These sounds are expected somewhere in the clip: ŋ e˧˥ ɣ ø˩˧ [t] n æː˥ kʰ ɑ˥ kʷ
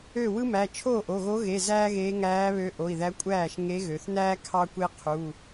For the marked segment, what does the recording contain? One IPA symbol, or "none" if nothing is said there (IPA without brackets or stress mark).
θ